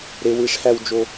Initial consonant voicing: voiced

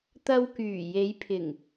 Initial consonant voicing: voiceless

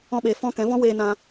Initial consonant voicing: voiced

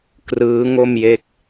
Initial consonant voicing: voiceless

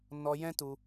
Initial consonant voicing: voiced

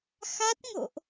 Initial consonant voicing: voiceless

